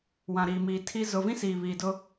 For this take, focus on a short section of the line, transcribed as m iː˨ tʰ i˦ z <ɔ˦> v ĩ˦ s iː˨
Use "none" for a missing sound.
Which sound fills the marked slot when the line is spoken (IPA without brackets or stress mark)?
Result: ʊ˦